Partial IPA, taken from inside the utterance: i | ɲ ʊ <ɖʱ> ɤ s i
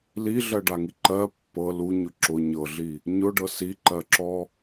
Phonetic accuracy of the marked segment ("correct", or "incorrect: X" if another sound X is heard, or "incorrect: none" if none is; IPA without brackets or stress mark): incorrect: ɖ